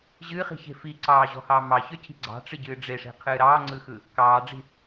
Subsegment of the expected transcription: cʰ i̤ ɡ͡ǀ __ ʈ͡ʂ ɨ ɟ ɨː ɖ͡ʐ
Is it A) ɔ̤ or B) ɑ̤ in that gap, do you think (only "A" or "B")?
B